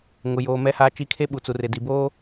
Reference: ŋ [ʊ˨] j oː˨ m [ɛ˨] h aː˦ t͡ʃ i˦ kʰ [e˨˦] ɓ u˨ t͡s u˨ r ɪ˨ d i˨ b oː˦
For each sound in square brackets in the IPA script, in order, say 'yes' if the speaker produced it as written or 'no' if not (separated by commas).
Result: yes, no, no